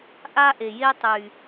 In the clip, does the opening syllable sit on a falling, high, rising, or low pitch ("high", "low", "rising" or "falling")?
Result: high